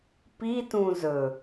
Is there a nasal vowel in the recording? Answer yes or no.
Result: yes